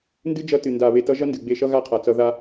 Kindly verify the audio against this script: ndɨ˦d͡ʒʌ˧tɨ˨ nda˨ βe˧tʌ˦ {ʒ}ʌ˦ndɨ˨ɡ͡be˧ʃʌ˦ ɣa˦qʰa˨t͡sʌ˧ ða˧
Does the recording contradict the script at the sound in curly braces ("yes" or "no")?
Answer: no